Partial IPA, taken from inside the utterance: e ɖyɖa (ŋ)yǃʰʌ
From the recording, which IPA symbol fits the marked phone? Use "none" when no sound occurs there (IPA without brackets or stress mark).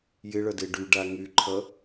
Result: ŋ